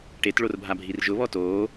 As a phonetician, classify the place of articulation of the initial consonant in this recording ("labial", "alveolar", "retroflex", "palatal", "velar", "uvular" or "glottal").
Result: retroflex